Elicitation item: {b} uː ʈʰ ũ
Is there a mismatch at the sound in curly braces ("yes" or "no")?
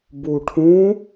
no